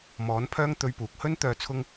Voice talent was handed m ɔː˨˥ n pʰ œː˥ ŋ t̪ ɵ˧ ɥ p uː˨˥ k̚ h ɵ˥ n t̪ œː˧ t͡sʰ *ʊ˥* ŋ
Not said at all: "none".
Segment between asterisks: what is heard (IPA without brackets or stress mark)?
ʊ˥